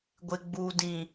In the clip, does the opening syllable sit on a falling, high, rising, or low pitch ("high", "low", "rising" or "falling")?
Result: low